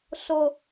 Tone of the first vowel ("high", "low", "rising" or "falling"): high